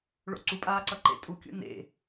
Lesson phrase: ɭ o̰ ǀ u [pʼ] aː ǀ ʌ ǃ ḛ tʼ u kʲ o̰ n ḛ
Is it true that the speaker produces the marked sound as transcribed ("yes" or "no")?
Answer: yes